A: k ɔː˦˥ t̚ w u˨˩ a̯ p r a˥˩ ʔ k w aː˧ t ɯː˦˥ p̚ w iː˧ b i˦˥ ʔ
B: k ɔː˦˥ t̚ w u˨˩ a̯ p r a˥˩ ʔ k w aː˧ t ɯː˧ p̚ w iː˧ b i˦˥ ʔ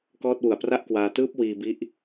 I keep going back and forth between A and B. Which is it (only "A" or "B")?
A